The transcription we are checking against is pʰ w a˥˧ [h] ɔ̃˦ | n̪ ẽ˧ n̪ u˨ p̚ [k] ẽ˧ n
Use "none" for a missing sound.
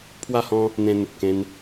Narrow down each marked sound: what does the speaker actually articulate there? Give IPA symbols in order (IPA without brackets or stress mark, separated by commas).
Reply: h, k